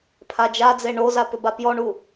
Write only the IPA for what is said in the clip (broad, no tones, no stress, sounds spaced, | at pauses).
pʰ a d͡ʒ a d͡z e ɳ o z a p ʏ b a p j ɔ ɳ u